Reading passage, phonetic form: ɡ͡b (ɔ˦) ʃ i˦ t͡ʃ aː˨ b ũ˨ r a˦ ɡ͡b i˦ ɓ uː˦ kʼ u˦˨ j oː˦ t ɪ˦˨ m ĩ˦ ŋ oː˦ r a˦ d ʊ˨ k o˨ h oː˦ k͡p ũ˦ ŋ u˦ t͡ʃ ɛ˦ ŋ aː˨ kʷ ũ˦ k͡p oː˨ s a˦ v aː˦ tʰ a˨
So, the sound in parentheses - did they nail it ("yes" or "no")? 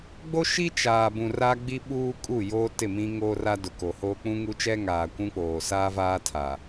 no